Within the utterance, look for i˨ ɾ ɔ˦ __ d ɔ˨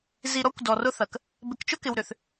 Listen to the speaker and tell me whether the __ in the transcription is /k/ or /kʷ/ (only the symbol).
kʷ